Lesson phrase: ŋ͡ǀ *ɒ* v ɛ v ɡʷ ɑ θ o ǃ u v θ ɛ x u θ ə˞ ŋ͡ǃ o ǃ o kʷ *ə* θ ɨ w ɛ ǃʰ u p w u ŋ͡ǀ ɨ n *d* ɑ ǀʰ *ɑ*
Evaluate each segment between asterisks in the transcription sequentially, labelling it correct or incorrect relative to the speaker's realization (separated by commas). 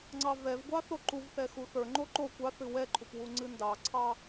incorrect, incorrect, correct, correct